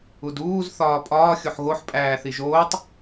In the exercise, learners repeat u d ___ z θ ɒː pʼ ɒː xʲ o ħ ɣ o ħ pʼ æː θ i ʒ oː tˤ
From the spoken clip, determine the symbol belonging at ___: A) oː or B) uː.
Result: B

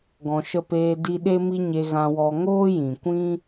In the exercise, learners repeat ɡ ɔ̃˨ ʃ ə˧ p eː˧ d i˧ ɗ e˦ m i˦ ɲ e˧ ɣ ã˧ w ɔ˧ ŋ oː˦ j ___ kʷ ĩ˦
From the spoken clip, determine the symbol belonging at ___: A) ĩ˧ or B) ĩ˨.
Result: B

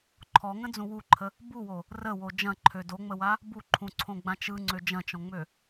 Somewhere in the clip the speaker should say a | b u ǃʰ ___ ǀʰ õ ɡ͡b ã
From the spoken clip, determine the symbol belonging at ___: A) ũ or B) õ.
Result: A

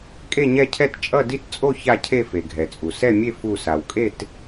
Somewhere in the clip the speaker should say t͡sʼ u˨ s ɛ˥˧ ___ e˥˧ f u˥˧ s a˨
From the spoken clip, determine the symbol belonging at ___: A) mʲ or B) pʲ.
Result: A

